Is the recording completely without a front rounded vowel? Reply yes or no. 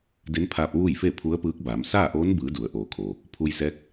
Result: yes